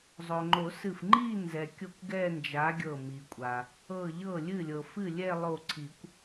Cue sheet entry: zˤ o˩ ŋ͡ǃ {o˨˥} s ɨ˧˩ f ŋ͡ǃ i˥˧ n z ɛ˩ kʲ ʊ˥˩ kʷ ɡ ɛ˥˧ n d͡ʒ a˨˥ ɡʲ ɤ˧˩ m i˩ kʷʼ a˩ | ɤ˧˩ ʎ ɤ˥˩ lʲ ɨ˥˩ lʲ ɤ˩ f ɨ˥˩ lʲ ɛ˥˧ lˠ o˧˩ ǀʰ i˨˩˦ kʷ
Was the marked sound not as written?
yes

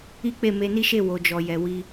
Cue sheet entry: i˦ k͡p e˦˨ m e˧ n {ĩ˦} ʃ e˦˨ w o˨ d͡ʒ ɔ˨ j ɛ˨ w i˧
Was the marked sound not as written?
yes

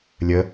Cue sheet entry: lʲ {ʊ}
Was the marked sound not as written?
yes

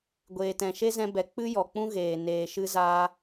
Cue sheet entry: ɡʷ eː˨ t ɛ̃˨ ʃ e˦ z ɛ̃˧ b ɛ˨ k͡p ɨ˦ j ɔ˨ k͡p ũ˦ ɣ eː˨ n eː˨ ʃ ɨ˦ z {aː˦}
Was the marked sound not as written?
no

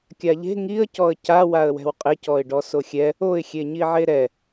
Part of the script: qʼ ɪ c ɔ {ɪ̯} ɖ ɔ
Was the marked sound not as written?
no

